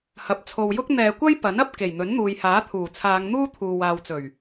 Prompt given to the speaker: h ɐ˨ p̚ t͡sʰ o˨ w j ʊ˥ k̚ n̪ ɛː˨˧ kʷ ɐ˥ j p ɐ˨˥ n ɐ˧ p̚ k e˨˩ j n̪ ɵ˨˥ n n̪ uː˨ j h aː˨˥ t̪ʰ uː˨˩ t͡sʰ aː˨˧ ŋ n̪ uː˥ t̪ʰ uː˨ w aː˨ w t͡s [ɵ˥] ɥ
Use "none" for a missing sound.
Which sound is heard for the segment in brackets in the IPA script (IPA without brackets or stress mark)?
ɵ˨˩